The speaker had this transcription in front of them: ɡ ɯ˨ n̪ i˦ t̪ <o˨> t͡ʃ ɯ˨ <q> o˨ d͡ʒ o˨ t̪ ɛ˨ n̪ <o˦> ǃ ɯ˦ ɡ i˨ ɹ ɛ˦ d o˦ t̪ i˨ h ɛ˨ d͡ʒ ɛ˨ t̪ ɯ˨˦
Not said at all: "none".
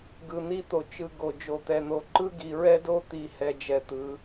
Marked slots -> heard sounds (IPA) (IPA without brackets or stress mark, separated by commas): o˨, ɡ, o˨